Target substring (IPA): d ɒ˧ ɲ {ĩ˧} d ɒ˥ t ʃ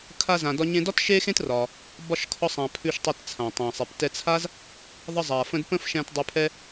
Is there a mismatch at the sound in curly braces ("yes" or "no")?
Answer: yes